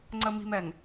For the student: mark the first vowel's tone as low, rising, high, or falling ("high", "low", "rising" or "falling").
low